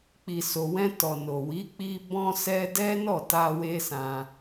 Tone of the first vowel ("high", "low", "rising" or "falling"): low